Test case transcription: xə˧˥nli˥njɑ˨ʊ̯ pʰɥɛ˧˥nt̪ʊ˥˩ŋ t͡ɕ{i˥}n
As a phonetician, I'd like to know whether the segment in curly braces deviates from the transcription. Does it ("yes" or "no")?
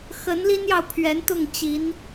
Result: yes